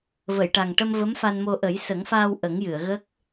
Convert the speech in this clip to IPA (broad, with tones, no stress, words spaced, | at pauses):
və˨˩˨jʈa˨˩ŋʈə˧m və˧˥mfa˧nmo˧ ʔə˨˩˦jsə˨˩˦ŋfaː˧w ʔə˨˩˦ŋjɨ˨˩˨ə̯ ɣə˦˥k̚